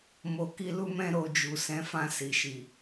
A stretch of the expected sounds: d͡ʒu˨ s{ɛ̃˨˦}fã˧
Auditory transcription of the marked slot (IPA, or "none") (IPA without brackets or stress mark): ɛ̃˨˦